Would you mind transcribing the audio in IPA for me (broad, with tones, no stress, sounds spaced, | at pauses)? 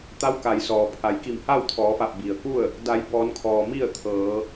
t̪ a˧˥ w k a˩ j s ɔː˩ pʰ a˩˧ j k i˧˩ m h a˥˨ w t̪ʰ ɔː˩˧ f a˧˩ p̚ b i˩ ə̯ k u˥˨ ə̯ | d a˩˧ j b ɔː˩˧ n kʰ ɔː˩ m i˥˨ ə̯ t̪ʰ ɤː˩˧